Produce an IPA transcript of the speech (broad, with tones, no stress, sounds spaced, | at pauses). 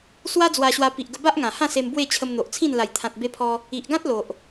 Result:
s w a˦ d͡z w a˧ ɕ w a˧ p i˨ ʔ ɡ ə˧ b a˦ ʔ ŋ ã˨˩ h ã˥˧ s e˧ m b w e˥˧ t͡ɕʰ ə˧ m n̪ o˨ ʔ t͡sʰ ĩ˥˧ n l a˨˩ j t̪ʰ ã˨ t̚ b e˧ pʰ ɔ˧ | i˨ ʔ ɡ ã˦ t̚ l o˨ ʔ